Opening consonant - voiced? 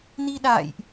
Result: yes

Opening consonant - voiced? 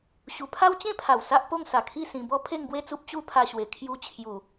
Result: no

